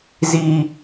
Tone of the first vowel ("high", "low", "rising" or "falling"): high